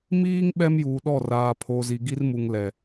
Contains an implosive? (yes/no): yes